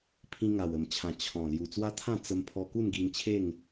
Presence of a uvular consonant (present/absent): absent